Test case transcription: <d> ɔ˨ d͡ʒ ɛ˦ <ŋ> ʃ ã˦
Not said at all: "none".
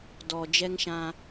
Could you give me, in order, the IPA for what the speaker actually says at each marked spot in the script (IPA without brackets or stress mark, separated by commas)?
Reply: d, ŋ